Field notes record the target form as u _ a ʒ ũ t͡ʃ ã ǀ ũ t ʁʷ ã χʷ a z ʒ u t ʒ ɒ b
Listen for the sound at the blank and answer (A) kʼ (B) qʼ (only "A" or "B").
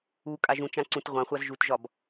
A